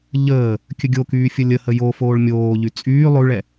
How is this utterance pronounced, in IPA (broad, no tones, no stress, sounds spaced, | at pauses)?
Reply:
ʎ əː | kʲ ə ɡʲ o k yː fʲ ə lʲ ə h ə j o f oː ɭ mʲ oː ʎ y t͡sʼ yː lˠ ʉ ɭ ɛ